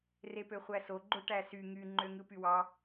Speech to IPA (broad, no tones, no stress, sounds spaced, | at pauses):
r e p ø χʷ æ s o ɡ͡ǃ o ʈ æ s y ŋ y ŋ͡ǃ ø ŋ ɯ p y w ɑ